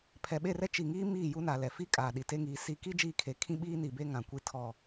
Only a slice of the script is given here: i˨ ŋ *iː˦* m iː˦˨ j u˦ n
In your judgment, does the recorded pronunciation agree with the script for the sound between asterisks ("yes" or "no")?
yes